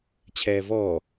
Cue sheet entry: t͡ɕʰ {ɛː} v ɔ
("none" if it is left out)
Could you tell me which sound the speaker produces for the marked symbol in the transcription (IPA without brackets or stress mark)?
ɛː